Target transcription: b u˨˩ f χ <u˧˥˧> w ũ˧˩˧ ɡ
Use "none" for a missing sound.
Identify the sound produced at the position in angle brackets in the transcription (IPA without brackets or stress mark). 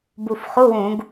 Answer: u˧˥˧